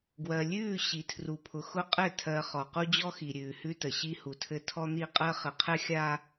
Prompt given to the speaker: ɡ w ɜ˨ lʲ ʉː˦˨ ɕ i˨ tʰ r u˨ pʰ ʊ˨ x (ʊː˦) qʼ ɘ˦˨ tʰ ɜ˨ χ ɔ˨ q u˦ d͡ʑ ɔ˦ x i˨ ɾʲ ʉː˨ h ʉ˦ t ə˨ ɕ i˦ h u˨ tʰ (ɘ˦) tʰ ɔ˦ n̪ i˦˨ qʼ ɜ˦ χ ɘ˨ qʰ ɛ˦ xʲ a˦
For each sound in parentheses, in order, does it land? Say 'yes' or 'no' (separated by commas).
no, yes